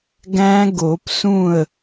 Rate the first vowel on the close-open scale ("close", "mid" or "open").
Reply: open